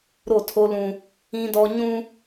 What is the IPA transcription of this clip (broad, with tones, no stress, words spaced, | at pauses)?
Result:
ɾo˦˨ tʰo˦lũ˦ | ĩ˦dɔ˦ ɲũ˦